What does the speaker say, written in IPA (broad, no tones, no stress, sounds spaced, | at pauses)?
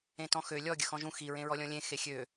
ẽ t ɔ̃ x ø lʲ ɔ ɡʲ ə x ɔ̃ ʒ ũ x i ɹ ẽ ɹ ɔ lʲ ɔ̃ lʲ ẽ x e xʲ ø